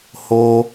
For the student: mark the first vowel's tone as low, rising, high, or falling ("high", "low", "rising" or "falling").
high